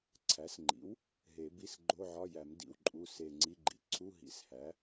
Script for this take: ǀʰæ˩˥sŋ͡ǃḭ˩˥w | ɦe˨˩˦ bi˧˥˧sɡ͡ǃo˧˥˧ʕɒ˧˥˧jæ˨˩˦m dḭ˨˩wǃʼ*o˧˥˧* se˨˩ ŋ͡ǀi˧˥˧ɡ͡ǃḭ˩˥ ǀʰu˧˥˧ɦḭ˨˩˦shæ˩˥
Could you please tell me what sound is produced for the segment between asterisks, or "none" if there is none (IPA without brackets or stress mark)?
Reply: u˧˥˧